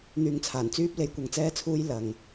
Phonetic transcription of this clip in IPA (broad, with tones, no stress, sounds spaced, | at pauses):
n̪ yː˨ ŋ t͡sʰ aː˨˩ n t͡s yː˧ p̚ l e˨˧ j kʷ ɐ˨ ŋ t͡s ɛː˧ t͡sʰ uː˧ j l ɐ˨ ŋ